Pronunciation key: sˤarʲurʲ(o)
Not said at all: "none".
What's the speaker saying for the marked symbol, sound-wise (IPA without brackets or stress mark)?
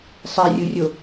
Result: o